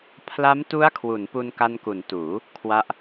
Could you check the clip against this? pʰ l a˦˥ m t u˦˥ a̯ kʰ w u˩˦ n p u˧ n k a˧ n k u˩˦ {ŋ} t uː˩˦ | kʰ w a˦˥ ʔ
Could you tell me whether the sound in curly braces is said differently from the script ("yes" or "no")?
yes